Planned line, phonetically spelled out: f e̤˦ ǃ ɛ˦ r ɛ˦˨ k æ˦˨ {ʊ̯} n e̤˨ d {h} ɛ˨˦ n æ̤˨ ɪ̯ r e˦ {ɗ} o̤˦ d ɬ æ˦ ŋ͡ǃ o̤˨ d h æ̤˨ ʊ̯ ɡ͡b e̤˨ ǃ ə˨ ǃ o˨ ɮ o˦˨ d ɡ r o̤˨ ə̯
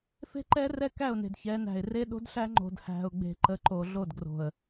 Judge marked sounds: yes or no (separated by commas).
yes, no, yes